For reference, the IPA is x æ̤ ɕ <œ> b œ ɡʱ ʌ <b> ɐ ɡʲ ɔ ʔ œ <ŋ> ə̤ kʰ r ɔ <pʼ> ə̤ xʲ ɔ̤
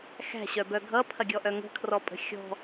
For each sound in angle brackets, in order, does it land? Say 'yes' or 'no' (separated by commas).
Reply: yes, no, yes, yes